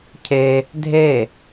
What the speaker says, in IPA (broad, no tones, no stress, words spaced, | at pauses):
cʰe | dʱe